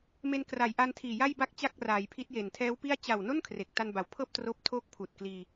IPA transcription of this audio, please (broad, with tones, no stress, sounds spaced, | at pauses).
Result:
m e˧ n k r a˩˦ j ʔ a˧ n tʰ iː˨˩ j a˥˩ j b a˥˩ k̚ t͡ɕ a˥˩ k̚ r aː˩˦ j pʰ i˦˥ t̚ j e˨˩ n tʰ ɛː˦˥ w p i˥˩ a̯ t͡ɕ a˨˩ w n o˥˩ n kʰ r e˨˩ k̚ t a˧ n b a˩˦ w pʰ ɤː˥˩ p̚ t r oː˥˩ p̚ tʰ oː˦˥ k̚ pʰ uː˨˩ t̚ k l iː˧